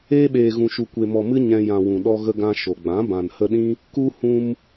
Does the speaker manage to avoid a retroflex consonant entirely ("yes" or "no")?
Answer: yes